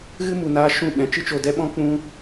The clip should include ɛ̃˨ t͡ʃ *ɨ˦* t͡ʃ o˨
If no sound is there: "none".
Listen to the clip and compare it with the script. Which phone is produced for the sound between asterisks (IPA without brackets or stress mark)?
ɨ˧